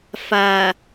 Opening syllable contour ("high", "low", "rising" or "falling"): low